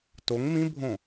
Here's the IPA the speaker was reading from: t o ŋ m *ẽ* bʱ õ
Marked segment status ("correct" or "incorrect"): incorrect